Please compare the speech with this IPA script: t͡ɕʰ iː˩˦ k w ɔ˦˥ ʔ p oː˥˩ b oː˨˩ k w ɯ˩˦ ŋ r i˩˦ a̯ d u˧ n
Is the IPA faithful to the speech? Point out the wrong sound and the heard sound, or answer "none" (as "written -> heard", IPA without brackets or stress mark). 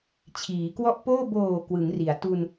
d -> t